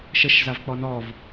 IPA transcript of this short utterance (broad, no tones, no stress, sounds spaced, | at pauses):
ʃ ə ʃ z a v k͡p ɔ n ɔ v